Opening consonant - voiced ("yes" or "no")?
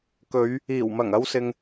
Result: no